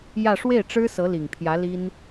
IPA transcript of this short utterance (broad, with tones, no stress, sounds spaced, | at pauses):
j ä˥˧ ʂ w e˥˩ ɪ̯ ʈ͡ʂ ɻ̩˥ s ɤ˧˥ l i˨˩ ŋ pʰ j ä˧˥ l i˥ n